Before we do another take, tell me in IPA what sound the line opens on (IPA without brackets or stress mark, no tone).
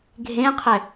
ɡʱ